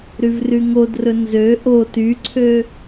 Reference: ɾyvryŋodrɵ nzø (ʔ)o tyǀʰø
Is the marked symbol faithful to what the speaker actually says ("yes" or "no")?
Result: yes